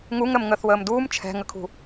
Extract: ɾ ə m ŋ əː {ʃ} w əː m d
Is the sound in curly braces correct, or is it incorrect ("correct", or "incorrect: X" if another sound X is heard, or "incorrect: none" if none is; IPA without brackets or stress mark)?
incorrect: θ